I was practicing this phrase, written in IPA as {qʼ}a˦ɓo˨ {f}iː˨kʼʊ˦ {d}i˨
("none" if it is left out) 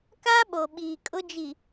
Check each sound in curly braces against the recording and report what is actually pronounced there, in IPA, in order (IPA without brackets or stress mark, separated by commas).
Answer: k, ɓ, d͡ʒ